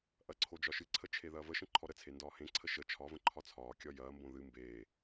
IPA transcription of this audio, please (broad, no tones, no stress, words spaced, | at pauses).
ʔɐǀʰo d͡ʒɒʃɨǀʰə t͡ʃʰeðɐːvəʃə̃ ǃʰɔɾət͡sʰe ndɒːhẽǀʰə ʃə t͡ʃʰɒvə̃ ǃʰɒt͡sʰɒːkʲɒ jɐːmbõ ðɨ mbeː